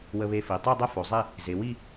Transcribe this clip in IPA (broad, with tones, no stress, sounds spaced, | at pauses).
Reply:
w ə˧ β e˧ f i˩ tˤ i˥˧ dˤ e˥ f o˩˧ zˤ i˥˧ | z e˩˧ w i˥˧